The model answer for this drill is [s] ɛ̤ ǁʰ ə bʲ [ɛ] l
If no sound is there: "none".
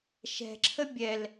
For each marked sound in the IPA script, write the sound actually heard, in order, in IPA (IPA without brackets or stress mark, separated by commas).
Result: ʃ, ɛ